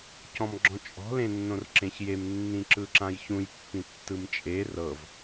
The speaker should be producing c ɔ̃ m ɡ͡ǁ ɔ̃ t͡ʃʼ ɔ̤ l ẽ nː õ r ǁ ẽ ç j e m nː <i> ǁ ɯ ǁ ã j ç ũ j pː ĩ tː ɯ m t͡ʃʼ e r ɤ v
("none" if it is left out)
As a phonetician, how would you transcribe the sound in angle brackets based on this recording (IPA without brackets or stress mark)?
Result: ĩ